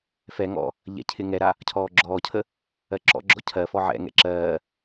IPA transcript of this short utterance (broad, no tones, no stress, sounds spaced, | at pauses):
f ɛ ŋ ɔ̰ | ʎ ɛ̰ cʰ ɪ ŋ ɛ ɾ a | cʰ ɔː ɡ͡ǁ ɔː cʰ ə | ɜ ǁ ɔ̰ ɡ͡ǁ ɔ̰ cʰ ɜ f ɔ ʕ ɛ̰ ŋ ɛ̰ ǁ ɜː